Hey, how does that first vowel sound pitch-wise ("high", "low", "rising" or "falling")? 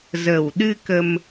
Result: low